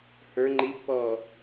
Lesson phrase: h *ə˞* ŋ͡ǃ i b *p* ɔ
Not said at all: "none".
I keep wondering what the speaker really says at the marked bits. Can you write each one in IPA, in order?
ə˞, p

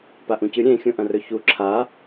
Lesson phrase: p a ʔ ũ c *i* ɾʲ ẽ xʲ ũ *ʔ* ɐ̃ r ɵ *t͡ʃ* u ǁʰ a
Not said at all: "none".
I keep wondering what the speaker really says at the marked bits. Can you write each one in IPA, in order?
ɨ, ʔ, ç

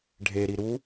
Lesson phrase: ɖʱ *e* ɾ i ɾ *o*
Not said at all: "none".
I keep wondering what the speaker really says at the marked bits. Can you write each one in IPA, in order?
e, u

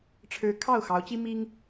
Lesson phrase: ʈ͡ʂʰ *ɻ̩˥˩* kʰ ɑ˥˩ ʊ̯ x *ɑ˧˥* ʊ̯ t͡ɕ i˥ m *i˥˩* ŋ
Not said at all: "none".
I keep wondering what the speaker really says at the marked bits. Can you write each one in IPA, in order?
ɻ̩˧˥, ɑ˧˥, i˥

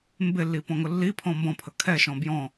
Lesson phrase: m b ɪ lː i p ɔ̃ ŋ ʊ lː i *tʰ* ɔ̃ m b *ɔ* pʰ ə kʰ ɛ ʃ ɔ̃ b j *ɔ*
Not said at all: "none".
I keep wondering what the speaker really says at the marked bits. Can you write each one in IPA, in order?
pʰ, ɔ̃, ɔ̃

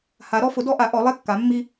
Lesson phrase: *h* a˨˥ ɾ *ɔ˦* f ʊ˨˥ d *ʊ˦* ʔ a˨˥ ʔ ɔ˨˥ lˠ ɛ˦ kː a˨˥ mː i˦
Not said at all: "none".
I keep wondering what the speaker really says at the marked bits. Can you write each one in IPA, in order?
h, ɔ˦, ɔ˦

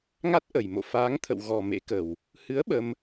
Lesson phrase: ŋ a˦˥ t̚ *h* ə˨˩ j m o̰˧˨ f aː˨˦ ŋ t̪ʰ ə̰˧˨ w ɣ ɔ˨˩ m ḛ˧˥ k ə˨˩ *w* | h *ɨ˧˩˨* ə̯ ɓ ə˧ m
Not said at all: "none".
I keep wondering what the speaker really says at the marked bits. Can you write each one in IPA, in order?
ʔ, w, ɨ˨˦

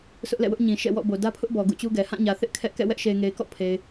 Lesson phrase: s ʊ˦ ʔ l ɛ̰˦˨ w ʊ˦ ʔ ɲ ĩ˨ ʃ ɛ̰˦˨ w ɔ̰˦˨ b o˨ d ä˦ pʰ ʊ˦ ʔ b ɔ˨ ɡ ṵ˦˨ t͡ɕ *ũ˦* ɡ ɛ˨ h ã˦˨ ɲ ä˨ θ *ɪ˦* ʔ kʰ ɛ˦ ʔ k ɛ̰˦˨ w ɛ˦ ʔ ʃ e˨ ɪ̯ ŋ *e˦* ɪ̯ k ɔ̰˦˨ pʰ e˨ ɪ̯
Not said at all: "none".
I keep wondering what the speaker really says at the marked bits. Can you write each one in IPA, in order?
u˦, ɪ˦, e˨

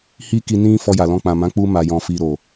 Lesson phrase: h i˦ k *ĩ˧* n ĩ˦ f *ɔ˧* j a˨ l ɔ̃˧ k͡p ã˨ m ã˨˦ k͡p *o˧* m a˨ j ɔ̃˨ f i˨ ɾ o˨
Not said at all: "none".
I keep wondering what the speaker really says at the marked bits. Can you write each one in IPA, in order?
i˧, ɔ˧, u˧

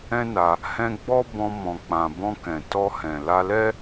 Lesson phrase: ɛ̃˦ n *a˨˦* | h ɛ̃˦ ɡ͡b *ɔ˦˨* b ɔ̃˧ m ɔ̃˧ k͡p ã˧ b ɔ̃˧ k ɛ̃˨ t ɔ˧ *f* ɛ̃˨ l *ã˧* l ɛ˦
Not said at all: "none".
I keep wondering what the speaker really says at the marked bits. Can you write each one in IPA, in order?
a˧, ɔ˦, h, a˧

